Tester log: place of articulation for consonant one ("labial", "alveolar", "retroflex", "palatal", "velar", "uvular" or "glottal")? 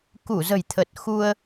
velar